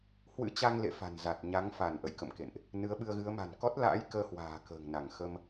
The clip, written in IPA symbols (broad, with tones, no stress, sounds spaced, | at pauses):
h w ɨ̰˧˥ t͡ɕ a˧ ŋ l ḛ˧˨ f a̤˨˩ n z a˨˩ t̚ ɲ a˨˦ ŋ f a˧˩ n ʔ ə̰˧˨ j k ə̰˧˨ m k ḛ˧˨ n ʔ | n ɨ˨˦ ə̯ ɓ ɨ˧ ə̯ ɣ ɨ˨˦ ə̯ m a̤˨˩ n k ɔ˦˥ t̚ l a̰ː˧˥ j k əː˧ h w a̤ː˨˩ k ə̤ː˨˩ ŋ n a˧˩ ŋ x ə˧ m